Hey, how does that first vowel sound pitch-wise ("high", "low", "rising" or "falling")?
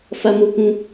high